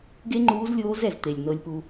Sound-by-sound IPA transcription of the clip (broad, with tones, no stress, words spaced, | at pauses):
ɡe˥ŋ͡ǃuː˧˥zlʲoː˧˥z ɛ˩z t̪e˩lʲnɤ˧lʲpu˧